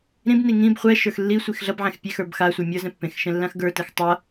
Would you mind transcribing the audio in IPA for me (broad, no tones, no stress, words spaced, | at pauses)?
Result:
ɾĩbni ŋĩb χʷɛʃə˞x lːisʷix ɮʌbʕɛ̃x pʲe xə˞bxasʷə˞ mʲʌ zɛ̃pːẽxʃɛ̃ lːãxɡə˞tɛx tˤʌ